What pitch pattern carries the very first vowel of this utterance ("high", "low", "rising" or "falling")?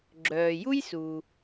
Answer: low